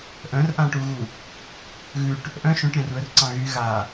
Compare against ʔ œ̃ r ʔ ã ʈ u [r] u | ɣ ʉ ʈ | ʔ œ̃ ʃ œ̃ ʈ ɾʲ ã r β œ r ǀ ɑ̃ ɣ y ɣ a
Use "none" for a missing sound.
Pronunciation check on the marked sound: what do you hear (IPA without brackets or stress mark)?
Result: ɣ